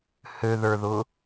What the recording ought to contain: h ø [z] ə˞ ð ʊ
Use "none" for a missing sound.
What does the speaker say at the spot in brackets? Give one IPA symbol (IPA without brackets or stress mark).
ð